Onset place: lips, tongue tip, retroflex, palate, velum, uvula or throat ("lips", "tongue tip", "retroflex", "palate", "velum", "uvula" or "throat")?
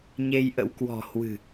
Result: palate